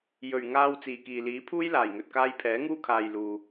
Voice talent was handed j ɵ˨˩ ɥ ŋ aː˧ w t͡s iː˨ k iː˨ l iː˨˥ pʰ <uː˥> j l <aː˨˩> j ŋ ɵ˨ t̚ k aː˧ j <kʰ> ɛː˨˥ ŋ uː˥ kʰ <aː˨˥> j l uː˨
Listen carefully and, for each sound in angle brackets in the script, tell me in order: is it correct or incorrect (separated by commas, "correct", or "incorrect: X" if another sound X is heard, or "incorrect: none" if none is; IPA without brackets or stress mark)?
correct, correct, incorrect: pʰ, incorrect: aː˨